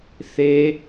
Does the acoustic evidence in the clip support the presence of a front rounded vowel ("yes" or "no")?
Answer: no